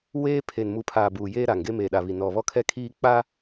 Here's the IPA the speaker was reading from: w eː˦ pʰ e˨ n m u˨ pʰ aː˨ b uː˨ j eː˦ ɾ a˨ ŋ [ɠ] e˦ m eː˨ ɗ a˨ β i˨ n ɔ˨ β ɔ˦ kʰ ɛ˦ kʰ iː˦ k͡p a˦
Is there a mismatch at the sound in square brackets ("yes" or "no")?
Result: yes